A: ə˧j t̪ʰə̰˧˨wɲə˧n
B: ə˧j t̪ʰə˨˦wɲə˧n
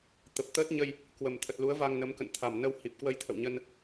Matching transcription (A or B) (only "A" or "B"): A